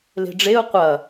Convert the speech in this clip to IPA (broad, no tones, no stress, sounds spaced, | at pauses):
l e̤ ɖ͡ʐ e ʊ̯ qʷ ɐ